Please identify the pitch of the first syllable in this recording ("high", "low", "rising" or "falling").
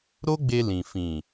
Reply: high